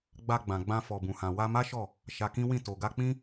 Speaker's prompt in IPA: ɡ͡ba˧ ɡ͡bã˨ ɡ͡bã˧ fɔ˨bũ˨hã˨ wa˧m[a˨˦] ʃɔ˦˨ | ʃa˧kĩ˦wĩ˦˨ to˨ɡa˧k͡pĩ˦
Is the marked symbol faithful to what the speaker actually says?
no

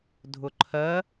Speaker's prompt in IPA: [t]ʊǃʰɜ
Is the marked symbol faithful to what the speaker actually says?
no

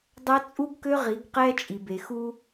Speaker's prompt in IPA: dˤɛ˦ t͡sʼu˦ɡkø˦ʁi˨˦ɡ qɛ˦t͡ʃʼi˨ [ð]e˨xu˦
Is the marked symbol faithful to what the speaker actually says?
no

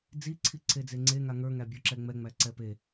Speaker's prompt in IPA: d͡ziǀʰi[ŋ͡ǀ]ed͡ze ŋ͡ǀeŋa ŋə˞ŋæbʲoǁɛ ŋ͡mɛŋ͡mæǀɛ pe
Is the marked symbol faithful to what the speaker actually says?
no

